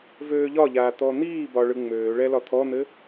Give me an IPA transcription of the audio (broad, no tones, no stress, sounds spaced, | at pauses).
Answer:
v øː ʎ ɒ ʎ aː t̪ ɔ n̪ iː b ɒ ɭ ɯ ŋ͡m øː ɭ ɛ l ɒ t̪ʰ ɔ n̪ ɘ